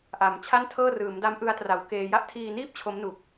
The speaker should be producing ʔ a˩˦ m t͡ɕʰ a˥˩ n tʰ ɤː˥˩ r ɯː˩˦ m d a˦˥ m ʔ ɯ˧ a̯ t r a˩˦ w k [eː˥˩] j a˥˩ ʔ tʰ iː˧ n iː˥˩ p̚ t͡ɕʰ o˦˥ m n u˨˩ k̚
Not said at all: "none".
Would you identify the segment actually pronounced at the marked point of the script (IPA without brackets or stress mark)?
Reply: eː˧